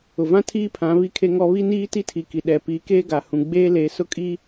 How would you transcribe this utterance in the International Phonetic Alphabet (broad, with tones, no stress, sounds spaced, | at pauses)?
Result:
ʊ˨ v ã˦ tʰ iː˦ pʰ ã˨˦ β i˦ kʰ e˦ ŋ ɔ˦ β i˦ n iː˦ t i˦ tʰ i˨ k i˨ ɗ ɛ˨ p i˨˦ k eː˦ ɡ a˨ h ũ˨ ɡ͡b eː˦ l eː˨ s ʊ˦ kʼ i˦